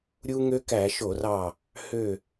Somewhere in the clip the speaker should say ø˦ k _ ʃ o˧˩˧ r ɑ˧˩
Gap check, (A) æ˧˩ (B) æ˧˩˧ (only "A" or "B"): B